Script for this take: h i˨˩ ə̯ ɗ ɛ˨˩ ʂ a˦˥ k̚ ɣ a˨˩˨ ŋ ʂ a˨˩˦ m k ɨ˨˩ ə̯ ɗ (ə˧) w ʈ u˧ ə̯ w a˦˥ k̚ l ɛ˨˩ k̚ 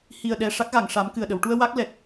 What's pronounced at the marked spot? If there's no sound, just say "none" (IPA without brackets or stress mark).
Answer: ə˨˩˨